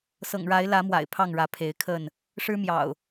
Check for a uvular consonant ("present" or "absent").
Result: absent